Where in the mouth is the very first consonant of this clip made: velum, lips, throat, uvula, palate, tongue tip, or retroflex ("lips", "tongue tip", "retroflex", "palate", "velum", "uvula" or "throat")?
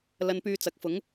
tongue tip